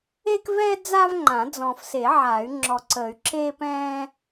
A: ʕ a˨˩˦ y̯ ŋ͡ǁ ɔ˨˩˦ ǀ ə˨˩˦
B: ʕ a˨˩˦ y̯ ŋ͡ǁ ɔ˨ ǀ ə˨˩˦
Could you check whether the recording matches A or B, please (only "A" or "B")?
B